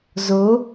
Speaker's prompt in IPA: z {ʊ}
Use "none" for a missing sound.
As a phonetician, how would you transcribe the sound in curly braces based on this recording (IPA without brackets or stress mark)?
ʊ